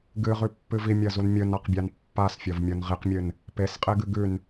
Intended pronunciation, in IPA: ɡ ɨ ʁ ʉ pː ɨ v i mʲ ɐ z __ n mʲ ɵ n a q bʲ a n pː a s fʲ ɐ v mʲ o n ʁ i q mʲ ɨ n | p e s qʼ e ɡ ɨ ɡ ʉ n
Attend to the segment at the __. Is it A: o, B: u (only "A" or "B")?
B